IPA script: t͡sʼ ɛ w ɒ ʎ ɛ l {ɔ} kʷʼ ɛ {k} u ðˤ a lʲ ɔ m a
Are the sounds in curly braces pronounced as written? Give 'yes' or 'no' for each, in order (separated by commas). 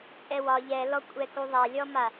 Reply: yes, yes